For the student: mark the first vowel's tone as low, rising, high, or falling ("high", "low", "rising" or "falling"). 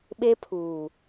high